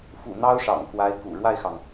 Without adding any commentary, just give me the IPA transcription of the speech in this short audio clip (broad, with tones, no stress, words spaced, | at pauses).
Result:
fṵ˨˩ n̪ɑ˥ʊ̯ʂɑ̰˨˩ŋkwa˧˥ɪ̯kṵ˨˩ ɻwa˥˩ɪ̯xɑ˩ŋ